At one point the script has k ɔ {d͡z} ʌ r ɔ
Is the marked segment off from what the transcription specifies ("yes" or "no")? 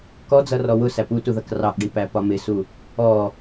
no